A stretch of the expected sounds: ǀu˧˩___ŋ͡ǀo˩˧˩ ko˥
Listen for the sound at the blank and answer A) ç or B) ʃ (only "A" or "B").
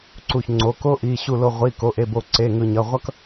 A